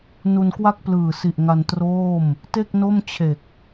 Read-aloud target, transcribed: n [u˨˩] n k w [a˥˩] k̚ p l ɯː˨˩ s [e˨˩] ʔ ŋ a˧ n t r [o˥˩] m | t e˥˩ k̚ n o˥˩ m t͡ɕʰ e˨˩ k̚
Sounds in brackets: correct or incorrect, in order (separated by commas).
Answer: incorrect, correct, incorrect, incorrect